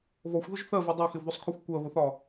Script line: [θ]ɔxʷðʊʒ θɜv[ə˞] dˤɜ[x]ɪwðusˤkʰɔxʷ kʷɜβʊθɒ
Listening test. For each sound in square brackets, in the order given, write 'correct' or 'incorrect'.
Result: incorrect: β, incorrect: ɜ, correct

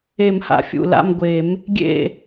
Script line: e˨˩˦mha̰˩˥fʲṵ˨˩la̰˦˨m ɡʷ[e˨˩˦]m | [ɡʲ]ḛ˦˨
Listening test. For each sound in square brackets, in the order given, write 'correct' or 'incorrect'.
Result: correct, correct

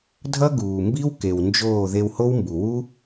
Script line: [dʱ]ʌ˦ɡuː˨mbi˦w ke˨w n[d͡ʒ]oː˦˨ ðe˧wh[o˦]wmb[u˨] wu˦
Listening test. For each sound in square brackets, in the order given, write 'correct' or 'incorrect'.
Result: correct, correct, correct, correct

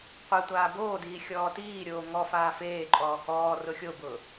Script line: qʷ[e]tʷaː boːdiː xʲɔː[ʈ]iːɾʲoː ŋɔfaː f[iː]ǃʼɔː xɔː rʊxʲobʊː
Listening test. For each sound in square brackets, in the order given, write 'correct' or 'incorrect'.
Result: correct, incorrect: t, incorrect: eː

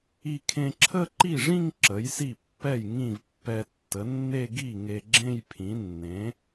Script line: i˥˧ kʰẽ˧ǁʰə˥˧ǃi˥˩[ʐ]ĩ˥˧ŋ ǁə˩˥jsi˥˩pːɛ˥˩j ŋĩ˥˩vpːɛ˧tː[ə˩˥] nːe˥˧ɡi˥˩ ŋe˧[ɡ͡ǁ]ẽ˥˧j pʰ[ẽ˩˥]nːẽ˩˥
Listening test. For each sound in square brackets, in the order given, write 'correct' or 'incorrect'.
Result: correct, correct, correct, incorrect: ĩ˩˥

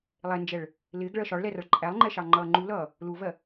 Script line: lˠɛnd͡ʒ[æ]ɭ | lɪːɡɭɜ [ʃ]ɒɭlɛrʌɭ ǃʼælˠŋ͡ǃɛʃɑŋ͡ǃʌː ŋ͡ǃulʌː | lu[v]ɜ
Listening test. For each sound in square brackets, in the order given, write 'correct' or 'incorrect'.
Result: incorrect: ɛ, correct, correct

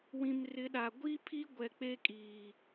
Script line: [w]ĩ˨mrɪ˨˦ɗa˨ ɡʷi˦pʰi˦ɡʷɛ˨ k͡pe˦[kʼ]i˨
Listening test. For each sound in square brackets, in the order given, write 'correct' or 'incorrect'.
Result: correct, correct

